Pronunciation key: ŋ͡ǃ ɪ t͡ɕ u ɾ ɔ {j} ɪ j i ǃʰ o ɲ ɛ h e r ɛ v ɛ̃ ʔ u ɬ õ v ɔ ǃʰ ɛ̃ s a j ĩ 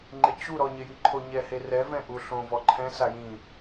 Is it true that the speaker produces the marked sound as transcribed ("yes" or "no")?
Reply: no